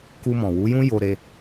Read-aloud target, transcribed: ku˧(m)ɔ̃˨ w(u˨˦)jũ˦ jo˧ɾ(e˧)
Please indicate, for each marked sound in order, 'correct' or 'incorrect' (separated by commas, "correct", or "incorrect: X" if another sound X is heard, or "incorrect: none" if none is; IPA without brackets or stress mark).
correct, correct, correct